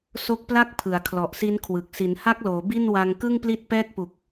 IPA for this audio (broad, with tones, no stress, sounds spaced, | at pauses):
s o˦˥ k̚ p l a˥˩ k̚ pʰ ɯ˩˦ a̯ kʰ l ɔ˨˩ ʔ s i˦˥ n kʰ w ɯ˨˩ k̚ s i˩˦ n h a˦˥ k̚ l oː˩˦ b i˥˩ n w a˧ ŋ k ɯ˥˩ ŋ p l i˦˥ t̚ p ɛː˥˩ k̚ p u˨˩ k̚